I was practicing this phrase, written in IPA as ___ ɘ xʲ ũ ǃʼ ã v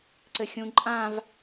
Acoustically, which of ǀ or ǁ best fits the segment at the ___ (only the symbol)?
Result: ǀ